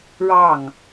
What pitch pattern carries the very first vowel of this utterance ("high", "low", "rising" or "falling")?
falling